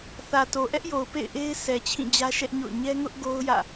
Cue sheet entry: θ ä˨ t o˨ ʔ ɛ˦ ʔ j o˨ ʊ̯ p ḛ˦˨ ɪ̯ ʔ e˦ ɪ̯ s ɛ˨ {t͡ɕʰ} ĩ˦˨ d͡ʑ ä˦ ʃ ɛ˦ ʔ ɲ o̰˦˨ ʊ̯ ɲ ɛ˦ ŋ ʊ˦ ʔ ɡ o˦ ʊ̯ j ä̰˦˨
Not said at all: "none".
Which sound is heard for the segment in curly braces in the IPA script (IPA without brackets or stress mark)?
t͡ɕʰ